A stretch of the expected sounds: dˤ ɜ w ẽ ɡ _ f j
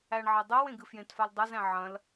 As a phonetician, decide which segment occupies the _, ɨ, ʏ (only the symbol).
ɨ